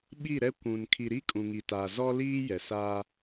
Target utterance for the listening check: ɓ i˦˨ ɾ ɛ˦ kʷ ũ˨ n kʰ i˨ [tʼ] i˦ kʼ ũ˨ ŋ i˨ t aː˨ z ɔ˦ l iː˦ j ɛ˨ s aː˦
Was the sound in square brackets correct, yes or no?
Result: no